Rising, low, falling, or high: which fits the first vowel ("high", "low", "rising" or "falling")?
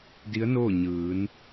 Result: rising